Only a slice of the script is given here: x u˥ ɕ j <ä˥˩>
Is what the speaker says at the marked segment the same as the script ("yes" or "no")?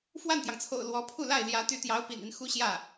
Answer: yes